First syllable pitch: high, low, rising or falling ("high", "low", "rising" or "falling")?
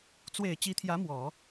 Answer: low